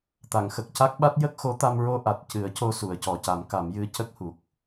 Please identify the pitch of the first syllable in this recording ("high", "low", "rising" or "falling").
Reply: low